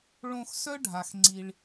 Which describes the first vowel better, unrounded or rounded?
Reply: rounded